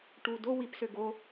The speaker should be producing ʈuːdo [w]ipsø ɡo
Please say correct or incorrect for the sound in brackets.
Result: correct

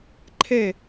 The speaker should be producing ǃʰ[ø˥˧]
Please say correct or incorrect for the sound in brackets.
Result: incorrect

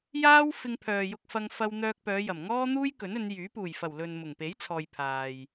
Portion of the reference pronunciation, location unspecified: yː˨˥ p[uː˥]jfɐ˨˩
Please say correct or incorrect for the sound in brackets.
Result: incorrect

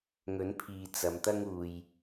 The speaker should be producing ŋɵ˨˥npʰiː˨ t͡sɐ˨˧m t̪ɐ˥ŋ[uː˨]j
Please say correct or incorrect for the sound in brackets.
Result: correct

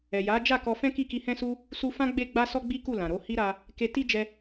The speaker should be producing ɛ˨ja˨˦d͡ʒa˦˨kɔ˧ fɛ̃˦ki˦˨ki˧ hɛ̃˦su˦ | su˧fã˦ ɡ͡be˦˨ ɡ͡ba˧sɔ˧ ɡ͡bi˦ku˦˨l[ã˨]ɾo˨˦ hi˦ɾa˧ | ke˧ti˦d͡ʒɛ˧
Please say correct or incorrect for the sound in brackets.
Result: correct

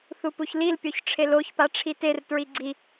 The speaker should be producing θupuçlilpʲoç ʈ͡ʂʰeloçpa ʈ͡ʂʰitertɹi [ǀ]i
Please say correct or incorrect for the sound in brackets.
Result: incorrect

